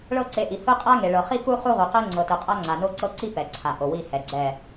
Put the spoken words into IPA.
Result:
ɭ ɤ˦˨ ǀ e˨˦ ʔ i˨ h ɯ˦ qʼ a˦ ŋ e˨ ɭ ɤ˨ χ i˦ k u˦ χ u˦ ʁ u˨ q ɛ˦ ŋ͡ǀ ɤ˨ t ɯ˨ qʼ a˦ ŋ͡ǀ a˨ n o˦ ǀ ɤ˦ ǀ i˦ p ɛ˨ ǀʰ a˨ ʔ o˨ w i˦˨ h ɛ˨ ɡ͡ǀ ɛ˦˨

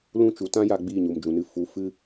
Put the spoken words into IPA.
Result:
l ũ˦˨ t͡ʃ u˨ t ã˦ j a˧ ɡ͡b iː˦˨ ɲ u˨ m d͡ʒ ũ˨ n ɨ˧ f u˨˦ f ɨ˦

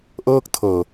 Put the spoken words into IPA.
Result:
ʔ ɤː˥˩ k̚ tʰ ɤː˨˩

